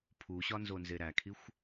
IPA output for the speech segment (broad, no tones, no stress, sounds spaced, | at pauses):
pʰ u ɕ ɒ n z o n z e ɾ æ kʰ i xʷ